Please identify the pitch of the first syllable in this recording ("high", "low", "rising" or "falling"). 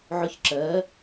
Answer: rising